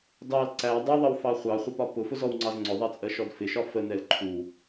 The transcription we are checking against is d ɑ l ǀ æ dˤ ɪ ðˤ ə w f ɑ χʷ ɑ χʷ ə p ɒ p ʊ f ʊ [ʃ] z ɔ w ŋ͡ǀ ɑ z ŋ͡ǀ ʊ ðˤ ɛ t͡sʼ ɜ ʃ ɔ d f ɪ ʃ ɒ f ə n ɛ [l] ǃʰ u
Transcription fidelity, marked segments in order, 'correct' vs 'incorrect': incorrect, correct

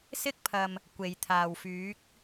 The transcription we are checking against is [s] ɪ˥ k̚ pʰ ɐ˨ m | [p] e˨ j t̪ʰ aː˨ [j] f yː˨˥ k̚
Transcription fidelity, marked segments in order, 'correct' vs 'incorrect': correct, incorrect, incorrect

